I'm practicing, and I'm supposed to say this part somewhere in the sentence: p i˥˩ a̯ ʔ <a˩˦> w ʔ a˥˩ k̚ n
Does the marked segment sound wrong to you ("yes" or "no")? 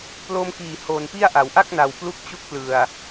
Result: no